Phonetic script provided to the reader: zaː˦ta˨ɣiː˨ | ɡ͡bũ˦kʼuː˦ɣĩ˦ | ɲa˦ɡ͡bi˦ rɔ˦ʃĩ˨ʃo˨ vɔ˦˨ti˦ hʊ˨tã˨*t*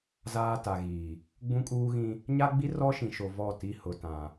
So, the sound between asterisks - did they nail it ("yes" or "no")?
no